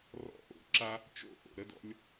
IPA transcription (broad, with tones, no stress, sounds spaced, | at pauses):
r ɔ̰˦ ʔ o̰˧ ǁ a˦ | t͡ʃ o̰˦ ʔ o̰˨ ɾ ə˧ d ɔ̰˧ lʲ